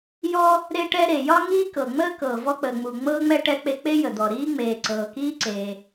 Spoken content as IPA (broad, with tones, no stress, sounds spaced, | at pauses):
j ɔ˥ | ɾ e˥ ʈ ɛ˥ ɾ e˩ j ɒ˥ ŋ iː˥ k ɤ˩ ŋ͡m əː˥ k ɤː˩ v ɔ˥ k͡p əː˩ ŋ͡m u˩ ŋ͡m ɤː˥ ŋ͡m ɛ˥ ʈ ɛ˥ k͡p e˥ k͡p e˥ j ə˩ d̪ ɔ˩ ɾ iː˥ ŋ͡m eː˩ ǀ ɤː˩ k iː˥ ǀ eː˩